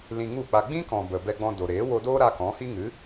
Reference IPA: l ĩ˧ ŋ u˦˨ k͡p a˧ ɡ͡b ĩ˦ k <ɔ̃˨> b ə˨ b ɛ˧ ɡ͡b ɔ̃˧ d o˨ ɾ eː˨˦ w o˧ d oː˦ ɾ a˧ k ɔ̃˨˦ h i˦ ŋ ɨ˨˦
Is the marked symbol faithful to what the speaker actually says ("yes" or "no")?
yes